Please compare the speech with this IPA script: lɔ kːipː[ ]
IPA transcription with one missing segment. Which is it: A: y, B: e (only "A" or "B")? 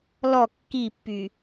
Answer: A